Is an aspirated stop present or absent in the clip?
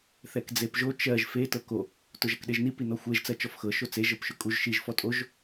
absent